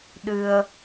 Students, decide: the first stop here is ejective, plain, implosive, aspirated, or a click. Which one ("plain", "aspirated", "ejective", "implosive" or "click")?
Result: implosive